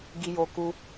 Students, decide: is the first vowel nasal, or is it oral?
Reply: oral